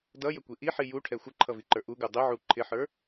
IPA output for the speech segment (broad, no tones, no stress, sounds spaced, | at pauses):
d ʌ j ə kʷ i ʔ i ħ i j u ʈʰ ɛ xʷ ə ǃʰ ʌ v i ǃ ə˞ ʔ u ɡ u dˤ ɪ ʕ u ǃʰ ɪ ħ ə˞